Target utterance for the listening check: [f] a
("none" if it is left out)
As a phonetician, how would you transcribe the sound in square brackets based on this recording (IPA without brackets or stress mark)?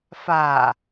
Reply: f